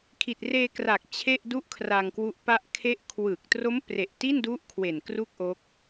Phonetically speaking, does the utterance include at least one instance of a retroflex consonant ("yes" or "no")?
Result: no